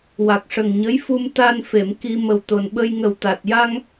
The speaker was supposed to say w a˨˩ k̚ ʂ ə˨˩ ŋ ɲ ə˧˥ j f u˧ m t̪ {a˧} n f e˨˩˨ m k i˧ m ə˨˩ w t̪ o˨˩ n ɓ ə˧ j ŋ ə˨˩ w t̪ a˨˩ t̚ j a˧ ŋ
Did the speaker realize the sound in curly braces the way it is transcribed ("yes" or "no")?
yes